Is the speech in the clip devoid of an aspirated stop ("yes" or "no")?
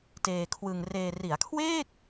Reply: no